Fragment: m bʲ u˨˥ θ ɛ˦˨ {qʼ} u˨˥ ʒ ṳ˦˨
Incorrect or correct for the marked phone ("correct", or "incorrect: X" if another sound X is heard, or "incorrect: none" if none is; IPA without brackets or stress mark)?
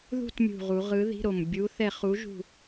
incorrect: χ